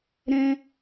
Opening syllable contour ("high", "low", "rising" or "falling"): high